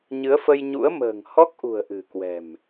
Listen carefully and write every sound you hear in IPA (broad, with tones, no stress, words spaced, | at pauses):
ɲɨ˨˦ə̯fə˧jɲṵ˧˥ə̯mə̤ː˨˩ŋ hɔ˦˥k̚ʔṳ˨˩ə̯ ʔɨ̤˨˩kwɛ̤˨˩m